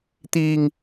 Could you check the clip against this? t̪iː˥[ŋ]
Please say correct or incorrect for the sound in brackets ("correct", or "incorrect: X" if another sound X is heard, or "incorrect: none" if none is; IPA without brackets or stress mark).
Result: correct